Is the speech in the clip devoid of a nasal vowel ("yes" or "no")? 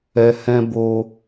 no